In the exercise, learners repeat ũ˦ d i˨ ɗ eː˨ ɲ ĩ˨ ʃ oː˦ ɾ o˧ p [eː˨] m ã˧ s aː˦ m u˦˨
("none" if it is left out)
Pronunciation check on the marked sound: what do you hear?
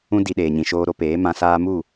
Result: eː˨˦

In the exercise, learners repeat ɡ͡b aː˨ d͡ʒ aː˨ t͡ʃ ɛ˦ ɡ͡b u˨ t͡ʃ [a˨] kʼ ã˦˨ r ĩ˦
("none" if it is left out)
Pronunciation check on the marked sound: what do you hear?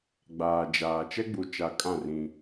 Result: a˨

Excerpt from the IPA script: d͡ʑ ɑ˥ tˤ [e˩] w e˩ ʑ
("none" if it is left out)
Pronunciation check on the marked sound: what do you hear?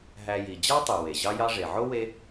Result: y˩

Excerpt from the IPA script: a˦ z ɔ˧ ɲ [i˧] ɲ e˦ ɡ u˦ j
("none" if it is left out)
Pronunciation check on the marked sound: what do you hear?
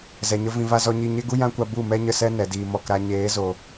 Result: i˧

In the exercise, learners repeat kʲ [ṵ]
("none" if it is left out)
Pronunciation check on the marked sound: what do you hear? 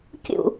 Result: ṵ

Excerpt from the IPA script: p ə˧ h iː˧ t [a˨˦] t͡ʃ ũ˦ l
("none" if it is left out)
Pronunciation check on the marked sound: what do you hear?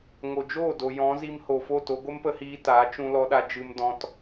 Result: a˨˦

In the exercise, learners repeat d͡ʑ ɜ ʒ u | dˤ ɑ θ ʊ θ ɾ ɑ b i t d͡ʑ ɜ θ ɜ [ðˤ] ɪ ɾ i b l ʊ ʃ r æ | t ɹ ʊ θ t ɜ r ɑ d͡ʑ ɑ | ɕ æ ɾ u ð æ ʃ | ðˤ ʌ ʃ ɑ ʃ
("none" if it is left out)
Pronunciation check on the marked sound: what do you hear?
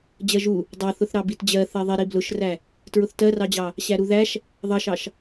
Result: ðˤ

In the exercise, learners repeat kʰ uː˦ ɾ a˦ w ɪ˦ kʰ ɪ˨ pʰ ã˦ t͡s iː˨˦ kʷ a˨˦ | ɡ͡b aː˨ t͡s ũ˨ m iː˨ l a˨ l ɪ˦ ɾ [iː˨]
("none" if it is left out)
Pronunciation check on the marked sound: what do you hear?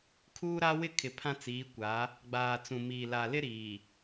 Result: iː˨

